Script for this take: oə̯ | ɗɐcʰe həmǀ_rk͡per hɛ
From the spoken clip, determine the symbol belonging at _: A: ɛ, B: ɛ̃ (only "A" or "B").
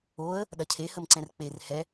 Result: B